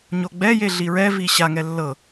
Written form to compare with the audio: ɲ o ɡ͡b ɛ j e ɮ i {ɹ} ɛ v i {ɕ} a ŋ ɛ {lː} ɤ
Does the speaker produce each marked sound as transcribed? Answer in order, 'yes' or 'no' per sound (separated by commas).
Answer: yes, yes, yes